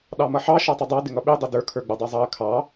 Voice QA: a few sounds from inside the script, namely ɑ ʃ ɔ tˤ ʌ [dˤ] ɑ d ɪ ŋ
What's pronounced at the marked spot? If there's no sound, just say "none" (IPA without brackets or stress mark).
dˤ